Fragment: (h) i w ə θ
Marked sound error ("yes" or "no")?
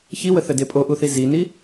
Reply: yes